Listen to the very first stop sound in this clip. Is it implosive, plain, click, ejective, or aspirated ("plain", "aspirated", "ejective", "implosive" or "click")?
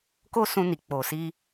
plain